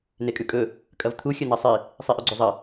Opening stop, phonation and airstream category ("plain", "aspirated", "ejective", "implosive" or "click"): ejective